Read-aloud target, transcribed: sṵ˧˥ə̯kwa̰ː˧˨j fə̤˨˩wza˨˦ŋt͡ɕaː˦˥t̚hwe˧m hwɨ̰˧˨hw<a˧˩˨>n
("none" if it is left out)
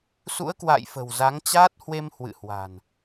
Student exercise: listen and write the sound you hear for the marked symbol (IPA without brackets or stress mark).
a̤˨˩